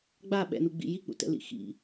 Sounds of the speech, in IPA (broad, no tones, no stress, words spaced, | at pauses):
ɡ͡ba ɓɛ̰nuɡ͡bḭ jik͡pṵtɛ̰lḭ xḭ